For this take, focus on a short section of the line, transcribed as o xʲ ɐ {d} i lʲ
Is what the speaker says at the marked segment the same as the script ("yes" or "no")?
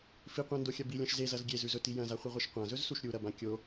no